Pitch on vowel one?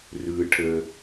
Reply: low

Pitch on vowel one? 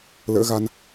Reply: rising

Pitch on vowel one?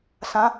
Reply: rising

